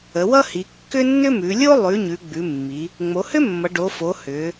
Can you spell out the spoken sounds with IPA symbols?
ə˩˧ w ʌ˥ h i˩˧ kː ʏ˥ nː ʏ˥ m ʉ˩˧ lʲ o˥ lˠ ʉ˩˧ ɲ ʉ˩˧ ɡ͡b ʉ˩˧ mː i˩˧ | ŋ͡m o˩˧ h ʏ˥ mː ʌ˩˧ ɖ o˩˧ f o˩˧ h ʏ˩˧

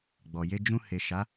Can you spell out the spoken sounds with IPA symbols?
ɡ͡b ɔ˨ j e˧ d͡ʒ ũ˧ h e˨ ʃ a˨˦

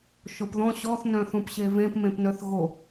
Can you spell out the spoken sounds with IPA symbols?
ʃ o p ð ɔ̃ ɕ ɔ θ n œ̃ θ ũ p ɕ e v ẽ p m ẽ p n œ θ ɣ o

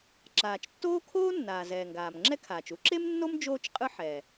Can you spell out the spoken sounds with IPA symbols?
ǁ aː˩ t͡ʃ tː oː˥ kʰ oː˥ nː aː˩ z ɛː˩ ŋ ɡ aː˩ m ŋ͡ǁ ɛ˥ kʰ aː˩ t͡ʃ u˥ ǁ e˥ m nː o˥ m d͡ʒ oː˥ t͡ʃ qʼ ɯ˥ ħ ɛ˩

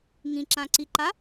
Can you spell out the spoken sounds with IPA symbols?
ŋ ĩ ǁ ã ǀ i ǃ a

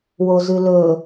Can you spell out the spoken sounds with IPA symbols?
w o z ʉ l ɵ

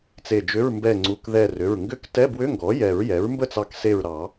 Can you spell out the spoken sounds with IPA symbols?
t͡s e˧˩ d͡ʒ ʏ˧˥˧ ɹ m b ɛ˧˩ ŋ͡ǀ u˩˧˩ k ð ɛ˧˩ r ʏ˩˧˩ ɹ ŋ ɡ ʏ˧˥˧ k t ɛ˧˥˧ b w ʏ˧˥˧ ŋ ɡ ɔ˩˥ j ɛ˨˩˦ ɹ j ɛ˩˥ ɹ m b ə˥˩ t͡s ɑ˧˩ k s e˧˩ ɹ ɾ ɑ˨˩˦

